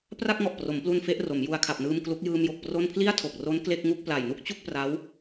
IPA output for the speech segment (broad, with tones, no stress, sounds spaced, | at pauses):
p r a˥˩ k̚ ŋ ɔ˨˩ ʔ p r o˩˦ m p l u˧ n f e˦˥ ʔ r o˩˦ m j u˧ a̯ kʰ a˨˩ p̚ n ɯː˧ m k l u˦˥ k̚ j ɯː˧ m j o˨˩ k̚ p r o˥˩ n pʰ l i˥˩ a̯ tʰ o˨˩ k̚ r o˦˥ n k l e˥˩ k̚ ŋ u˥˩ k̚ p l a˨˩ j n u˥˩ k̚ t͡ɕ u˥˩ k̚ p r a˦˥ w